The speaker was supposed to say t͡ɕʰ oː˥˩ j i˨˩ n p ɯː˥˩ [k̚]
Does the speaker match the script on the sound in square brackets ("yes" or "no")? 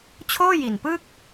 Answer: yes